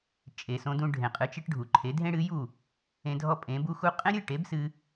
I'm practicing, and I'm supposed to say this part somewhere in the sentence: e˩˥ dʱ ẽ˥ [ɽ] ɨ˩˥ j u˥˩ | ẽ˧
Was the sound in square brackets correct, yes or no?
yes